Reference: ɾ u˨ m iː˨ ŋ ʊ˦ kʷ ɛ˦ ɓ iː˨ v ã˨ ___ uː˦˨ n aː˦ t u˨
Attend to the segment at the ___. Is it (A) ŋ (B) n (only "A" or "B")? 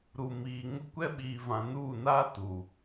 B